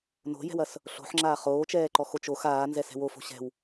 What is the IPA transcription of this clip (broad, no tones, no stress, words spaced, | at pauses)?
no̤jɛ̤wɐs | ɬo̤ħŋ͡ǁaː χoːt͡ʃɛːǃɔxot͡ʃ ox aːnzɛsɛ̤w ofo̤ ɕɛ̤w